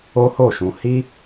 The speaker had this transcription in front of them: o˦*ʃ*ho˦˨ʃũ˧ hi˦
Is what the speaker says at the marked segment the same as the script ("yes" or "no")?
no